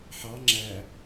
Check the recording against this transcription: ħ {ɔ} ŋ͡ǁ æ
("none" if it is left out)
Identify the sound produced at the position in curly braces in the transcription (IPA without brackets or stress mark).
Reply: ɑ